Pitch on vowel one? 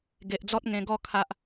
low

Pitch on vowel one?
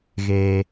low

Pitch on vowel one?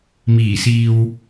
low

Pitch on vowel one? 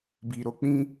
low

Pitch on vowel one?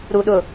low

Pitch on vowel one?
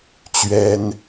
high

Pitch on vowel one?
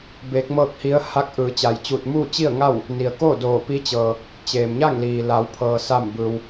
rising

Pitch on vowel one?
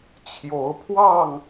rising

